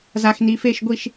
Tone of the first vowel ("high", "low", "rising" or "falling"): low